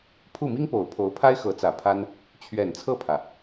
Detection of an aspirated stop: present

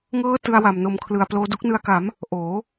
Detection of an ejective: absent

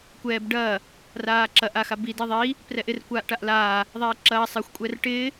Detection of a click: present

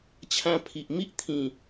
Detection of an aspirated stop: present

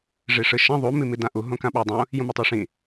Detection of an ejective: absent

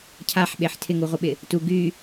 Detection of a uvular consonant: present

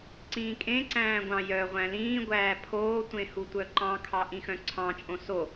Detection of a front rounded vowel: present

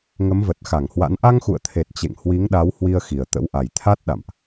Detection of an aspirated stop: present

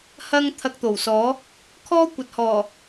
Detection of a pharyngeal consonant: absent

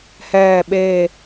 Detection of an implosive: present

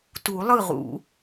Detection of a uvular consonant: present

